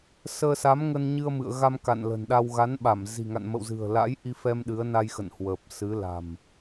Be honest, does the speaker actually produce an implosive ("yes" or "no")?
yes